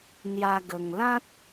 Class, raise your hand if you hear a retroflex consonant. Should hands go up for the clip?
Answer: no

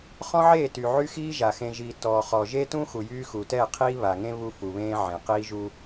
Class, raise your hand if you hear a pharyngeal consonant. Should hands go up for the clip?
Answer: yes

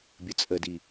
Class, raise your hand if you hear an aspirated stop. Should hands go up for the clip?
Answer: no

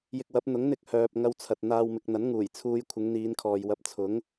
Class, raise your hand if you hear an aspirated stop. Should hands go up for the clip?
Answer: yes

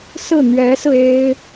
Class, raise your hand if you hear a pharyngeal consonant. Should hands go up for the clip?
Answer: no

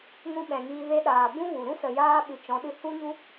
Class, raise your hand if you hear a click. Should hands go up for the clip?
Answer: no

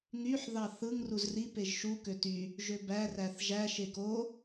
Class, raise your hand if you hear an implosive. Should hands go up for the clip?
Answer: no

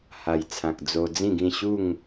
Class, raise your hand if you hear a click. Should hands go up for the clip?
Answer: no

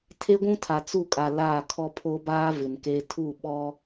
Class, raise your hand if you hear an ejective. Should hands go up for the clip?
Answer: yes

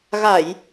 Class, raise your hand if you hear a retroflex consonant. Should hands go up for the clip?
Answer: no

